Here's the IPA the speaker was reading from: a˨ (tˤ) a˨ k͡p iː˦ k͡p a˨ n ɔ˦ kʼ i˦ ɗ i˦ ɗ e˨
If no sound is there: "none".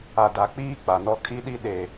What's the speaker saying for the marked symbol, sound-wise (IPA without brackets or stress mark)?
d